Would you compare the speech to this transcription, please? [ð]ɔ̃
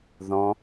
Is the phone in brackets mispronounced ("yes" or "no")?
no